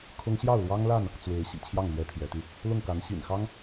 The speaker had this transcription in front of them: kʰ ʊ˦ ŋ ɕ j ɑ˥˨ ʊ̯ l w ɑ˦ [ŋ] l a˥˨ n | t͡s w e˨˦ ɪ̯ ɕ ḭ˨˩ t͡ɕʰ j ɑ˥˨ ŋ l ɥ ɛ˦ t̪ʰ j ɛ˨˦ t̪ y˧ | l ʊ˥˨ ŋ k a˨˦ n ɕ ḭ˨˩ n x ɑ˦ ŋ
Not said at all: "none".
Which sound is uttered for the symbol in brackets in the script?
ŋ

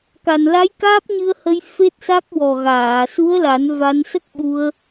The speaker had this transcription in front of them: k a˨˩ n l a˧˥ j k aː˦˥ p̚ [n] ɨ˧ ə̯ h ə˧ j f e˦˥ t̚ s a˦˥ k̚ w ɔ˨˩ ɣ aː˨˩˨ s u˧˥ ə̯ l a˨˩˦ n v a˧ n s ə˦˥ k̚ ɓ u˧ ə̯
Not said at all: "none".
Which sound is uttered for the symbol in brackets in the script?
ɲ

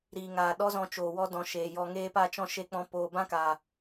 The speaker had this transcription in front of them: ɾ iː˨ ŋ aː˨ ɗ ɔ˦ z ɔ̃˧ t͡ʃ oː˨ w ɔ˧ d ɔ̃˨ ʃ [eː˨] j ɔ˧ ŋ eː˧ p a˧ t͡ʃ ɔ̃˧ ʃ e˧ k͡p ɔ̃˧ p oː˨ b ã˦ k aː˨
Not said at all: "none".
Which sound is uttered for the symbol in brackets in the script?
eː˨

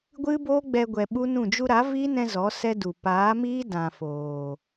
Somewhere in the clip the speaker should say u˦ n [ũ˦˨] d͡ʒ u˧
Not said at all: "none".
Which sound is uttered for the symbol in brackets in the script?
ũ˦˨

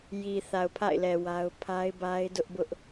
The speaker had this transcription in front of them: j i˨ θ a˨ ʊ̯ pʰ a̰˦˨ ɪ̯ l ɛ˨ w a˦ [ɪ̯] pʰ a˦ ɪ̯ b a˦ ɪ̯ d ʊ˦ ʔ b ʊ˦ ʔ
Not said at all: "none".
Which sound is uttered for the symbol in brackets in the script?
ʊ̯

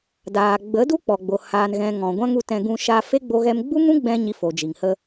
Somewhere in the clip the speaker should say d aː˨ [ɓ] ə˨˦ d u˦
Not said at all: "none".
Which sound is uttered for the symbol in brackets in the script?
ɡ͡b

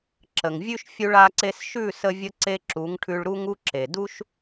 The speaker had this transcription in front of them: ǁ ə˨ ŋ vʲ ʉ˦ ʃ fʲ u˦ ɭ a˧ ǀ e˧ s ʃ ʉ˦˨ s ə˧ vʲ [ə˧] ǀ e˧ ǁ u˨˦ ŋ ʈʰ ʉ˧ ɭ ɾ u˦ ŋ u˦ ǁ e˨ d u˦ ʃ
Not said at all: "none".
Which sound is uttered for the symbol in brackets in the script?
ə˧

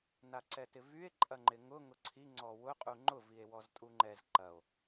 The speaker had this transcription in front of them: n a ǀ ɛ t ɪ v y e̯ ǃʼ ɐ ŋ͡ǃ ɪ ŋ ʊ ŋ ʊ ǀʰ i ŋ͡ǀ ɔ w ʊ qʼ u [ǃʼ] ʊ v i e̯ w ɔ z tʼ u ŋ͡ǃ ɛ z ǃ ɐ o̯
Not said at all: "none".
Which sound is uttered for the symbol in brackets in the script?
ŋ͡ǃ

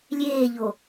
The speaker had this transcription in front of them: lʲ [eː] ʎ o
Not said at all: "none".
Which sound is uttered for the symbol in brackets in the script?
eː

